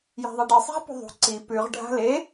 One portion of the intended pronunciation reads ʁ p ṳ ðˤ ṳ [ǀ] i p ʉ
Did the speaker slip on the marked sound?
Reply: no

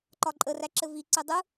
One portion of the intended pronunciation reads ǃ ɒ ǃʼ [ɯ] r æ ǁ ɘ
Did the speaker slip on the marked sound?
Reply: yes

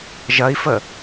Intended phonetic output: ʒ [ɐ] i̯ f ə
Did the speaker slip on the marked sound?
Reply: no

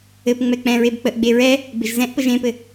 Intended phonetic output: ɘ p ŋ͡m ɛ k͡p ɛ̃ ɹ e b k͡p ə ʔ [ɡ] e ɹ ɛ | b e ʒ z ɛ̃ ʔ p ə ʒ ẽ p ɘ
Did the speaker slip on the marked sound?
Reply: yes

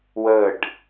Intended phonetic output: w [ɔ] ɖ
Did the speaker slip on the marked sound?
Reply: yes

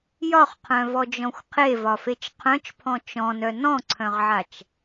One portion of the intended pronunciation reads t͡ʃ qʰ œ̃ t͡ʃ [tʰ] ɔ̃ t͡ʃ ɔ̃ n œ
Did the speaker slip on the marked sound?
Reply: yes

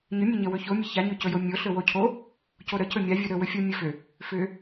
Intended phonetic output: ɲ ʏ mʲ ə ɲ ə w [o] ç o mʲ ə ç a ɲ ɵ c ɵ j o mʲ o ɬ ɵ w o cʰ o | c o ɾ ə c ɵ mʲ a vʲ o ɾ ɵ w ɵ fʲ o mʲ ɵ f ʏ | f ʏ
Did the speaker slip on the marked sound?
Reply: yes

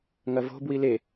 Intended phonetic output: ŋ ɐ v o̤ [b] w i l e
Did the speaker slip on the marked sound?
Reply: no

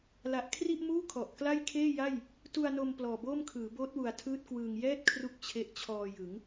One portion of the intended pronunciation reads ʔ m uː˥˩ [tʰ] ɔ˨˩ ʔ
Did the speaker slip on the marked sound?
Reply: yes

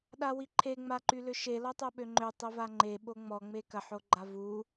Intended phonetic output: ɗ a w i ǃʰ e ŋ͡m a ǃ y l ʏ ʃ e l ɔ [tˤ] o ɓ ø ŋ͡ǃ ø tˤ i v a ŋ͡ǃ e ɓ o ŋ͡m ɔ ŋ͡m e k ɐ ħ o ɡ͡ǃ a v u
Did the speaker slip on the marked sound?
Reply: no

